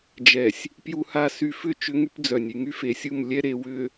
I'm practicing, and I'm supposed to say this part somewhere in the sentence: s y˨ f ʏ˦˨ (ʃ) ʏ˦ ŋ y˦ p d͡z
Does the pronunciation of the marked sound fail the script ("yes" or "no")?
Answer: yes